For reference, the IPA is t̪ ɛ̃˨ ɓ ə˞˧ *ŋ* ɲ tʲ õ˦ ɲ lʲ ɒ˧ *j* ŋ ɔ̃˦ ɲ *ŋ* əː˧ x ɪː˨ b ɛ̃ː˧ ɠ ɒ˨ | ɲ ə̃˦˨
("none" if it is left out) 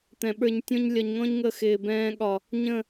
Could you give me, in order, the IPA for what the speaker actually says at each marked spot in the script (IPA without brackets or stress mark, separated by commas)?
none, ɲ, ŋ